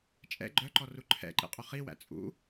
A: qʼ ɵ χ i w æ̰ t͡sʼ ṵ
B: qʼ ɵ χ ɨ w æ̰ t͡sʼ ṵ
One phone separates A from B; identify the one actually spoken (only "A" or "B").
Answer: A